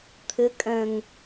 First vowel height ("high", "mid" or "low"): high